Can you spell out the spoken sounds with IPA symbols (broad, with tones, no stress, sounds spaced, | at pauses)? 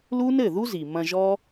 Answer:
l u˦ n ɘ˦˨ ð u˦ z i˨ m ɐ̃˧ ʒ ɔ˦